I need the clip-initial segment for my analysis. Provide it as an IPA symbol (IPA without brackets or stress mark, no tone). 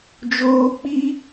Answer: d͡ʒ